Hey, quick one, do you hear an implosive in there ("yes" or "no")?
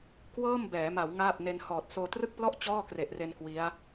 no